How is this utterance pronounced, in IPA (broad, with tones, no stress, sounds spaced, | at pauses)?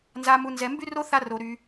n z a˧ m u˧ n z ɛ˧ m b y˦ r o˦ θ a˦ r o˧ ɾ y˧